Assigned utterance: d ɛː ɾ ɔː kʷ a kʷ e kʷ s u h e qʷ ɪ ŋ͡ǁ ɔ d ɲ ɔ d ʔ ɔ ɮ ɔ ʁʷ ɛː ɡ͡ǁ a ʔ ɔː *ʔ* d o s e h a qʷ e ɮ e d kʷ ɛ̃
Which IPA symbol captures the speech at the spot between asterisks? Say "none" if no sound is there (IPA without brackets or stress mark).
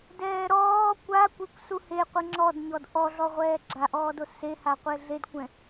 none